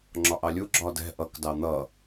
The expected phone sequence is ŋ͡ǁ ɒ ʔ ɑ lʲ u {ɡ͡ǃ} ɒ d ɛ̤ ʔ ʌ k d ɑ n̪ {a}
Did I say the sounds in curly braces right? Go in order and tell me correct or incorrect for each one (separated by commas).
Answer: incorrect, incorrect